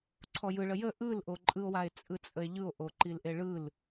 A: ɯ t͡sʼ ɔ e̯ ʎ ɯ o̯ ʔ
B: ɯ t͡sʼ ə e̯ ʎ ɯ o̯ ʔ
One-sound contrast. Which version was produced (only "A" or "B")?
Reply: B